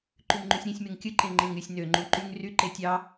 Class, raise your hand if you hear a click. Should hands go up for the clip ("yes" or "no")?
yes